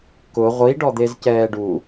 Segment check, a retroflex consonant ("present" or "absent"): present